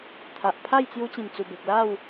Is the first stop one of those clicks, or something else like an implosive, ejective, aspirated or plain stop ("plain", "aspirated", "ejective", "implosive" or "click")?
aspirated